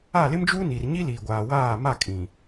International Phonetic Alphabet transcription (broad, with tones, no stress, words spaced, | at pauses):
a˦˨lɪ˦md͡ʒuː˦ ni˨r ɲi˦liː˨ ɡʷaː˨waː˦˨ma˦˨ kʼĩ˨